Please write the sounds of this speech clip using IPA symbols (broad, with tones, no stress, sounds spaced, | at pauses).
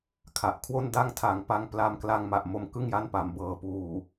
kʰ a˨˩ ʔ kʰ w o˥˩ n d a˥˩ ŋ tʰ a˨˩ ŋ p a˧ ŋ p l a˧ m k l a˧ ŋ m a˨˩ ʔ m o˧ m k ɯ˥˩ ŋ j a˥˩ n p a˩˦ m b ɤː˩˦ p uː˨˩